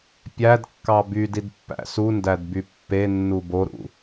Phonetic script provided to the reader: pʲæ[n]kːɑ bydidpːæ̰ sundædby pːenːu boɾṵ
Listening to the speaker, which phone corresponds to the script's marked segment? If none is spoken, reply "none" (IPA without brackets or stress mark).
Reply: d